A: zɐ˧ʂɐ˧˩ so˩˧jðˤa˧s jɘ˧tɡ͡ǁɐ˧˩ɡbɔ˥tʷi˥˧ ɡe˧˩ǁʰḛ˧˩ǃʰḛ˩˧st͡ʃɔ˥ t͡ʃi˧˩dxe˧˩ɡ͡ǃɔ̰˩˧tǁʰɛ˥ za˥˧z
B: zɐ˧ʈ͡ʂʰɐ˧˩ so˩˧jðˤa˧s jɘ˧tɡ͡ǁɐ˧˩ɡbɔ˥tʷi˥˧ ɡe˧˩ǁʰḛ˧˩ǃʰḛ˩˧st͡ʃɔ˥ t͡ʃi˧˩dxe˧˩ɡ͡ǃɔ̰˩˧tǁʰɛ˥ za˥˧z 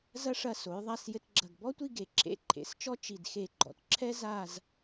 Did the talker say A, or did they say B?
A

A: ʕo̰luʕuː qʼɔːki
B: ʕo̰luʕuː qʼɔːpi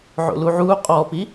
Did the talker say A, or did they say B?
B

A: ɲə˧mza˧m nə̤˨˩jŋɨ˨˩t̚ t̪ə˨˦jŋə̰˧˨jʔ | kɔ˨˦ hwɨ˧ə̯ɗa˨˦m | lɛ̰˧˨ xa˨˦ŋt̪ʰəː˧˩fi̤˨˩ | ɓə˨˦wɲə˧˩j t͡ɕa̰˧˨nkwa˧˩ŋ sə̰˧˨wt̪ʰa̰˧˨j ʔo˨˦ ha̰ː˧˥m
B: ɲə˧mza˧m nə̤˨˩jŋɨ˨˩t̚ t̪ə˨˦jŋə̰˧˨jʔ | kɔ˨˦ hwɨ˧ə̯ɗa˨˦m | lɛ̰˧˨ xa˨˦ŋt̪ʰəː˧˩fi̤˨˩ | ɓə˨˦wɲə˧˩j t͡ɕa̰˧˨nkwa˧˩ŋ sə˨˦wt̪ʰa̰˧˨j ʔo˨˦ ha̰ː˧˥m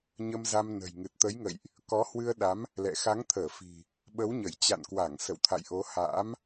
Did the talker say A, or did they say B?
A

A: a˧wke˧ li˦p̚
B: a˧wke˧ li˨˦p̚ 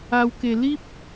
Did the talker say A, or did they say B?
A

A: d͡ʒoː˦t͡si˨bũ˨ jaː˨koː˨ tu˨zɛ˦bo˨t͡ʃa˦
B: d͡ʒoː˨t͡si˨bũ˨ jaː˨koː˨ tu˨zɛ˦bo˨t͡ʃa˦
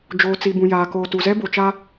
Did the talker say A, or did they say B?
B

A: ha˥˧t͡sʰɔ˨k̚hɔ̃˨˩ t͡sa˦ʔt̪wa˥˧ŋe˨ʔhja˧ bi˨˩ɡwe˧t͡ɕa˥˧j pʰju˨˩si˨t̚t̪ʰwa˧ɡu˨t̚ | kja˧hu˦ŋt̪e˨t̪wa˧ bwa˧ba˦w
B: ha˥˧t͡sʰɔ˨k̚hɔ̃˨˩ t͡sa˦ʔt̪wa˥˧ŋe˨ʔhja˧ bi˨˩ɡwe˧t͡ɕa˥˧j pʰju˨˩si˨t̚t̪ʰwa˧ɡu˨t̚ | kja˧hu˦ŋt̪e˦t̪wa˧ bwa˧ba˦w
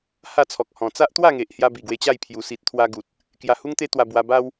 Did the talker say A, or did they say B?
B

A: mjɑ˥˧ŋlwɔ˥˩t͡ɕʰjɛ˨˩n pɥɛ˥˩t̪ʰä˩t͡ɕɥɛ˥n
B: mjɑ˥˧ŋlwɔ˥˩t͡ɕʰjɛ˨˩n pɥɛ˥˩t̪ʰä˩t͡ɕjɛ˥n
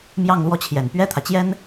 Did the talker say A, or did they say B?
B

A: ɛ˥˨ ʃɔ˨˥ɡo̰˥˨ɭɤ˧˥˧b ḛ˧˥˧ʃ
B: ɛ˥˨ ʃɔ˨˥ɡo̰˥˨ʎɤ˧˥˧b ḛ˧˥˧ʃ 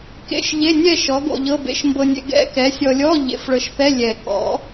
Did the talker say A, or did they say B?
B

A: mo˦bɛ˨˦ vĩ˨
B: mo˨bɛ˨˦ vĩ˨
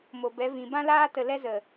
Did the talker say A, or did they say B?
B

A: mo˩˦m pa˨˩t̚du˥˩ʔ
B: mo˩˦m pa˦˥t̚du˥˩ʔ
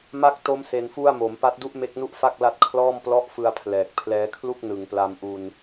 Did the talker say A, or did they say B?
B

